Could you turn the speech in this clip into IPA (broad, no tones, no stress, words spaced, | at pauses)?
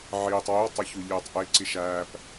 ʕiːtˤ wiwtˤo çuʎeːtˤʔe ǀiʃæːp